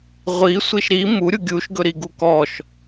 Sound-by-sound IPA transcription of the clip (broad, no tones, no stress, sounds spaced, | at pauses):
ʁʷ i sʷ i ʃ ɾ i m u ɾʲ u ɡʲ u ʃ ɡ ɵ ɾ i ɡ u k ɔ ʃ